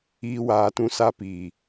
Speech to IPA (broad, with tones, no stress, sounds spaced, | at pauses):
iː˦ w aː˨˦ t ũ˦ s a˦ p iː˨